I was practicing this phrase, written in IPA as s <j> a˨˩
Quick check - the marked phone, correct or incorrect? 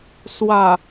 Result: incorrect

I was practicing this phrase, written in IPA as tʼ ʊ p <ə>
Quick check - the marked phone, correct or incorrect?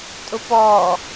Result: incorrect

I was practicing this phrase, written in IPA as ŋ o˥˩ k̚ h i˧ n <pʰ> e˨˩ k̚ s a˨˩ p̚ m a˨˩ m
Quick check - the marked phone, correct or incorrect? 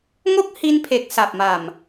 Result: correct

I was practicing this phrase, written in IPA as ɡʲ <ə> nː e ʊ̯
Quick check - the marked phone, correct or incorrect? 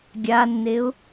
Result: incorrect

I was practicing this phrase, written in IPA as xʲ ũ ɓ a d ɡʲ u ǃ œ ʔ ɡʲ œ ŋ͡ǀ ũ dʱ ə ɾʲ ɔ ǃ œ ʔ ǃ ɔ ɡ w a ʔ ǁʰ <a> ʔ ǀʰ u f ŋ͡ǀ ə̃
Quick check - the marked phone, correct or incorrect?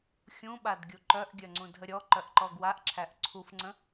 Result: incorrect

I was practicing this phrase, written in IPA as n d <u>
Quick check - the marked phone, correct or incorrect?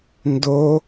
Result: incorrect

